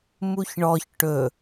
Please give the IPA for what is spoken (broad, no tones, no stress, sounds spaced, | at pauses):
m u ç ɳ ɔ ç ʈ ɵ